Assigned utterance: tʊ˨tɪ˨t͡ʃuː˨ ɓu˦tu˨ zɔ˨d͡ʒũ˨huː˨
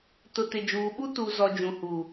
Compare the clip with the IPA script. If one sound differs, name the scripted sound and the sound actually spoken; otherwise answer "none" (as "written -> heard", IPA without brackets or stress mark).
t͡ʃ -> d͡ʒ